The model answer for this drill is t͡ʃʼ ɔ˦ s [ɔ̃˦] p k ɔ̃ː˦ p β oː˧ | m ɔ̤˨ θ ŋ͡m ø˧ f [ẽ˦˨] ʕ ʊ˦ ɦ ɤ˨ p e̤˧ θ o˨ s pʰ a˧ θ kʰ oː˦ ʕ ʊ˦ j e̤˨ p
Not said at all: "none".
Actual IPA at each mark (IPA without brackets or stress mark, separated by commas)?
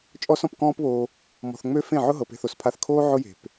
ɔ̃˧, ẽ˦˨